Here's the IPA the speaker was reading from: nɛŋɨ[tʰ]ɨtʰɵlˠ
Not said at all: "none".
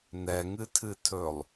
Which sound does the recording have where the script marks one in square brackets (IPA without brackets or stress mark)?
tʰ